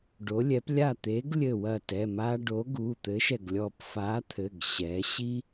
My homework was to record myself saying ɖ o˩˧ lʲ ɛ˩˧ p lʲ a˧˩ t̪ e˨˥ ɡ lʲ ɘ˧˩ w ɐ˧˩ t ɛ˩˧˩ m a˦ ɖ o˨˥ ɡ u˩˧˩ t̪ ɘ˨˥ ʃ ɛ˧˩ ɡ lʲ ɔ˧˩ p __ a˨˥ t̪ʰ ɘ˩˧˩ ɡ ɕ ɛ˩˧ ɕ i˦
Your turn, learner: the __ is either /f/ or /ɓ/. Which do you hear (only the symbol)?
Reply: f